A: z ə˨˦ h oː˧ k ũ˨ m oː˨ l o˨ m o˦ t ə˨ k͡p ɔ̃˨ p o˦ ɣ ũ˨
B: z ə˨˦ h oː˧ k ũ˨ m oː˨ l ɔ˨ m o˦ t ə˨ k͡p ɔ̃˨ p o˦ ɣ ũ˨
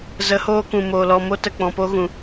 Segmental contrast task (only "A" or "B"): B